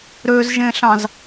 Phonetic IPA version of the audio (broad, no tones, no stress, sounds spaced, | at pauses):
ɾ ø z ʒ ẽ ɬ ɑ̃ z